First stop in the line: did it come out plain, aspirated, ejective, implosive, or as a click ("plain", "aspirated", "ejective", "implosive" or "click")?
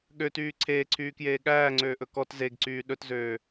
implosive